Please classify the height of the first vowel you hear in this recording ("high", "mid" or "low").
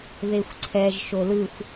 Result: mid